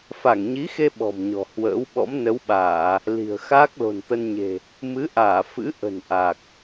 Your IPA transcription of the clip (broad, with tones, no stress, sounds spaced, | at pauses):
f a˧˩ ŋ ɲ i˨˦ x e˧ ɓ ɔ̤˨˩ m ɲ ɔ̤˨˩ h w ə̰ː˧˥ w ɓ ɔ̰˧˥ m n ə˨˦ w ɓ aː˧˩˨ | l i̤˨˩ ə̯ x aː˦˥ k̚ l o̤˨˩ n t̪ ə˧ n ɲ e̤˨˩ | m ɨ˨˦ ʔ aː˧˩ f ɨ̰˧˥ ʔ ə̤˨˩ n ʔ a˨˩ k̚